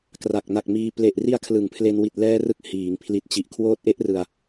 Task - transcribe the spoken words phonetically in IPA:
kra˨˩k̚na˨˩k̚miː˧ ple˨˩ʔri˧a̯ kʰlɯ˩˦ŋpʰle˧n wi˨˩t̚lɛː˧rɯ˨˩k̚ hiː˩˦ŋpʰli˨˩t̚ t͡ɕi˨˩ʔ kʰwoː˦˥t̚ʔe˦˥ʔrɯ˧a̯

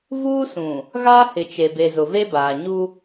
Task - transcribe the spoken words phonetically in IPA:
vuː˦sũ˨ | ɣaː˦hɪ˨t͡ʃe˨be˨ zʊ˨ve˦baː˨ ɲu˦

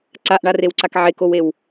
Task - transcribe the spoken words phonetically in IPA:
ǀaʔɳarewǀak ʕekowew

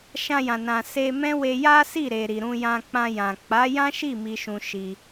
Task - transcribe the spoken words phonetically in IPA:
ʃã˧jã˨nã˨ se˧ mɛ̃˦ we˧ja˦si˦˨ ɾe˨ɾi˨ɾũ˧ jã˧k͡pã˧jã˨ k͡pa˨˦jã˦ʃi˦˨ mi˧ʃũ˨ ʃi˧

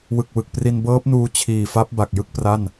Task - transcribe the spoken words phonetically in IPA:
wɯ˨˩k̚ wɯ˨˩k̚pri˧n bɤː˦˥p̚nuː˧ t͡ɕʰiː˨˩fa˦˥p̚ ba˨˩k̚jɯ˥˩k̚pra˥˩n

